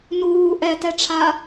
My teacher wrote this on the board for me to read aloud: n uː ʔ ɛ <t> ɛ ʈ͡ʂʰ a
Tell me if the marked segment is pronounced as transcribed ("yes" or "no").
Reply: yes